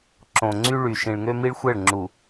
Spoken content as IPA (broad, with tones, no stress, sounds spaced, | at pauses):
ǁ õ˨ ŋ͡ǀ y˦ ɭ y˨ ʃ ĩ˨ ɭ ŋ ø˦ m i˦ ɭ xʷ ɛ˦˨ ɭ ŋ͡ǁ u˨